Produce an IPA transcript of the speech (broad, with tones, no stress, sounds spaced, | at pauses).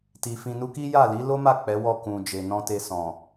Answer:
t i˨ f ĩ˨ n u˧ k i˦ j a˦˨ l i˨˦ l o˦ m a˦˨ k͡p ɛ˨˦ w ɔ˦˨ k ũ˨ d͡ʒ e˨ n ɔ̃˧ t e˧ s ɔ̃˨